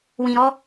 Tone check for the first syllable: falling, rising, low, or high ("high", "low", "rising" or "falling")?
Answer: low